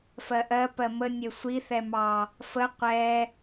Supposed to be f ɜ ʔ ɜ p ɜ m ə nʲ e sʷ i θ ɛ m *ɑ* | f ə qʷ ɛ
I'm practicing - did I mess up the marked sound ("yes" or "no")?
no